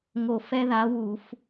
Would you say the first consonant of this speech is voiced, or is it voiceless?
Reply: voiced